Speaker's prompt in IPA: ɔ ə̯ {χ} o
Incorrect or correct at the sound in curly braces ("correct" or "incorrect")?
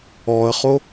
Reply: correct